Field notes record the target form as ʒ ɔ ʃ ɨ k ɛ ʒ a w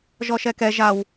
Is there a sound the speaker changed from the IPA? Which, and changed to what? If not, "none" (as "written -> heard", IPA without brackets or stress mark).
ɨ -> ɛ